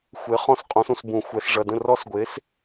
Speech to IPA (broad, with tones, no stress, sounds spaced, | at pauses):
xʷ e˨˥ χ ɔ̃˥˩ s qʼ õ˨˥ s ũ˧˩˧ s b ũ˧˩˧ xʷ ɛ˩˧ s ʐ ɐ˩˧˩ d ə̃˥˩ r ɔ˦˥ s ɡʷ e˨˥ s